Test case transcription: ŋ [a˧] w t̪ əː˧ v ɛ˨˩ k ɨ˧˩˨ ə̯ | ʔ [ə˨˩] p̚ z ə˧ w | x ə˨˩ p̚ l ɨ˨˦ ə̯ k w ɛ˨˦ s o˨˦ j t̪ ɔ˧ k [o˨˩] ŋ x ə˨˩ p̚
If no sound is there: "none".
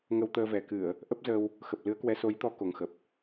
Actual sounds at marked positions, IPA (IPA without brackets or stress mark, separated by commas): ə˧, ə˦˥, o˨˩